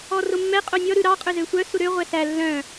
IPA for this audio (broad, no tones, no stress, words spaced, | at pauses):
ɔromːɛ qʼonʲɔ ɾʉɾɑ qʼɵzøsʷœ suɾø ʁʷɛsæ lːœ̃